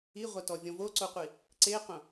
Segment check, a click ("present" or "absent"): present